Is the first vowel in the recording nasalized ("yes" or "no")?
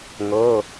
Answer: no